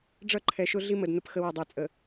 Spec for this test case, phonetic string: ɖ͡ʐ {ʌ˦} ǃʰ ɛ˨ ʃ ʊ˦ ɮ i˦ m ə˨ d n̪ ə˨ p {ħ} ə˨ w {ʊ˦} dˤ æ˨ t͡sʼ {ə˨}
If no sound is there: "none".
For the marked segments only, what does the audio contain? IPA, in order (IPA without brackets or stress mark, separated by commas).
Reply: ʌ˦, x, ʊ˨, ə˨